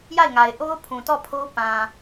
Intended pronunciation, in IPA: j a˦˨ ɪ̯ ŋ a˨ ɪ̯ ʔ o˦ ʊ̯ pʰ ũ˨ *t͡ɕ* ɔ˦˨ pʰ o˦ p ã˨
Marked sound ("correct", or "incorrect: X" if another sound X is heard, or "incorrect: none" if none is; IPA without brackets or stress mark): incorrect: t